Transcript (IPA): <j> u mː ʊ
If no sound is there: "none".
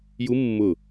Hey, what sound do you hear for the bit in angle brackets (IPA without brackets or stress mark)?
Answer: j